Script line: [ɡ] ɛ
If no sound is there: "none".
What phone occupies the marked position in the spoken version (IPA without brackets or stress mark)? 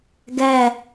ɡ